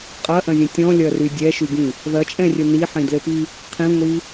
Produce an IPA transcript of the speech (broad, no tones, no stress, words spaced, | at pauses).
qʼɐʔɐ̃zʲɐ̃ tʲɔ̃lʲɐry dʲɛʃyɡĩ | ðɐt͡ʃʼɛ̃rʲɘ niħĩdlɘpi | qʰĩŋʷi